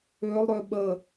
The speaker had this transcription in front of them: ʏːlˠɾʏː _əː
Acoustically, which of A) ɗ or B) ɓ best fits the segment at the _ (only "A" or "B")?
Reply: B